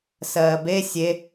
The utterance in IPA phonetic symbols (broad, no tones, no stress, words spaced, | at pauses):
sɜːbe sʲe